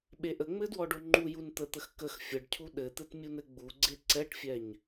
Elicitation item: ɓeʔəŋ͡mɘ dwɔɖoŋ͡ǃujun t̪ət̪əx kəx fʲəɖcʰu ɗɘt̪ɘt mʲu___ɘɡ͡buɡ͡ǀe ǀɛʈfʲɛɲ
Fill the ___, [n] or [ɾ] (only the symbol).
n